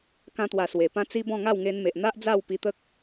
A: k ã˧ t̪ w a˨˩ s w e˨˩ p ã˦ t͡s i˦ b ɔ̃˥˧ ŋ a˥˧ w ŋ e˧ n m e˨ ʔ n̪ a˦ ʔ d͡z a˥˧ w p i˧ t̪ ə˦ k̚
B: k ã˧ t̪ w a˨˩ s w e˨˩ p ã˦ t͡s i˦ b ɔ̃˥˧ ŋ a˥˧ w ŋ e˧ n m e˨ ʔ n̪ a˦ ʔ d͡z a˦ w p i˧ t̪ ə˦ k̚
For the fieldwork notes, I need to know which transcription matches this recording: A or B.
A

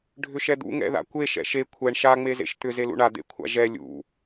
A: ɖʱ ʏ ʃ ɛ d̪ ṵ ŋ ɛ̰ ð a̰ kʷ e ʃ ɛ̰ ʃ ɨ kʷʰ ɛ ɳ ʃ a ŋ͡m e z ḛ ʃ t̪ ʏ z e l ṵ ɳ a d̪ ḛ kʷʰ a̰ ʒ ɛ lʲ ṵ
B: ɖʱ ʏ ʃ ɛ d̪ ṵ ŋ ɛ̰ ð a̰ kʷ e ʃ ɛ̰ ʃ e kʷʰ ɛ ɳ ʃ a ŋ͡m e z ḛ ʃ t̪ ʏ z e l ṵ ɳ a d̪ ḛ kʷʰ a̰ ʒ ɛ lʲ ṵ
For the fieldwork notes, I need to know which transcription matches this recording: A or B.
B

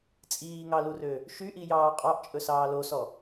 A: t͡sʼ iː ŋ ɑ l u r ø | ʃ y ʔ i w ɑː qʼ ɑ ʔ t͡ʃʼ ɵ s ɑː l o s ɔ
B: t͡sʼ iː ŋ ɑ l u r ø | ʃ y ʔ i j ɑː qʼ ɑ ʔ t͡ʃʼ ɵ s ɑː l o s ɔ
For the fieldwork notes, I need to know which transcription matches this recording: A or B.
B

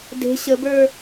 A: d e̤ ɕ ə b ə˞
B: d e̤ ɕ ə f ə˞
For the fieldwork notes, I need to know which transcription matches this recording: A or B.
A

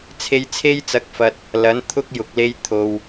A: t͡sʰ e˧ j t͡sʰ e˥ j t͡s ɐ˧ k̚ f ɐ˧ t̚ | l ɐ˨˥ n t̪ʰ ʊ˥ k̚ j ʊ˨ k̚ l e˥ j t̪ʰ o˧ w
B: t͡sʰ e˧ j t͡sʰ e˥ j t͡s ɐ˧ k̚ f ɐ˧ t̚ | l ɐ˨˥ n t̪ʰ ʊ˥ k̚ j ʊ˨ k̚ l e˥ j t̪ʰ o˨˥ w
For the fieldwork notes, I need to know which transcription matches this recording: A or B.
A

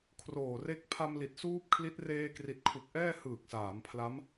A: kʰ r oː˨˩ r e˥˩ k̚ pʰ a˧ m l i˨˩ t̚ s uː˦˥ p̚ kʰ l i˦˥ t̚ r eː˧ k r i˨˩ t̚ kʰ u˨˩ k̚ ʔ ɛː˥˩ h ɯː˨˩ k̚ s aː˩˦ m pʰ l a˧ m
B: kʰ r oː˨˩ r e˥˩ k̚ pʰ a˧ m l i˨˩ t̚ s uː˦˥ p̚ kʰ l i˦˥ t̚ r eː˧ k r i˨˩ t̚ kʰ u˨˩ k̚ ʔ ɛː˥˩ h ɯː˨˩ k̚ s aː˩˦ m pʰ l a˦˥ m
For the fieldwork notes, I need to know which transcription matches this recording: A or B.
B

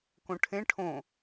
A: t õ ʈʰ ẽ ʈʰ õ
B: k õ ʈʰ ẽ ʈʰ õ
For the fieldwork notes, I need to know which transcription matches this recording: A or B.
B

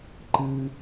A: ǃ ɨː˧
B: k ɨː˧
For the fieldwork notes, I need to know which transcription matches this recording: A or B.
A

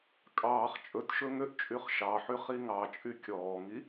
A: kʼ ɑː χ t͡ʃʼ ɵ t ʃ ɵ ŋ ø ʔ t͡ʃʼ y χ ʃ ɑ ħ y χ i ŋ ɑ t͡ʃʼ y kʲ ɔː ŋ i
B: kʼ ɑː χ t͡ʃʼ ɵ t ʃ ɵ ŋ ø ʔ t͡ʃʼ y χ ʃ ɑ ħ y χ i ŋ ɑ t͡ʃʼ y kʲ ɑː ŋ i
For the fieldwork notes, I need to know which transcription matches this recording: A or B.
A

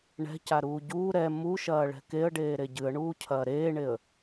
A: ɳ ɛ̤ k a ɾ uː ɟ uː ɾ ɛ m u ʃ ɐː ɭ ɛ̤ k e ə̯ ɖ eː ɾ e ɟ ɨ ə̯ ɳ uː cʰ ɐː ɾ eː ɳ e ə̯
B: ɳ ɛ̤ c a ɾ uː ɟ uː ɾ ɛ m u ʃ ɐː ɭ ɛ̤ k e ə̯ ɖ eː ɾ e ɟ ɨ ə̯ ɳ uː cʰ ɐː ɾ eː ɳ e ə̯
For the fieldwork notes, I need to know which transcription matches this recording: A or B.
B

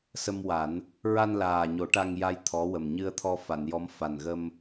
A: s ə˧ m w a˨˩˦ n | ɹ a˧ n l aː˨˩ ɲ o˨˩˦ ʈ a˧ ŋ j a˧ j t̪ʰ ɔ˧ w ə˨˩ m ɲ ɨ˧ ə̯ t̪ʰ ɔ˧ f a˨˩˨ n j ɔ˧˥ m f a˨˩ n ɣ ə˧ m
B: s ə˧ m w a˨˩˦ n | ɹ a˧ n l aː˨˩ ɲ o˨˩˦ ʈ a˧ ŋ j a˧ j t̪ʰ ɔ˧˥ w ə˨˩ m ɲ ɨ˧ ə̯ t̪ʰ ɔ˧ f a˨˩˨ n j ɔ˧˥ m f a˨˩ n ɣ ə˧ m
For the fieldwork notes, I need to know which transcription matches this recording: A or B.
B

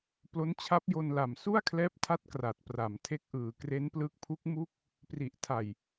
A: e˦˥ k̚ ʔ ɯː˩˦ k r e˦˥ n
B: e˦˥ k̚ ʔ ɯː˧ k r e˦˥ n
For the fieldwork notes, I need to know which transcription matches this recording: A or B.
A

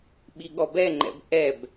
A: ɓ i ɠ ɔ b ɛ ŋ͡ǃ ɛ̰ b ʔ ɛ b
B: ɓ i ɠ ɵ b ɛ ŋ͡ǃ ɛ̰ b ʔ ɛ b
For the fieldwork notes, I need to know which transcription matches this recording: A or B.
A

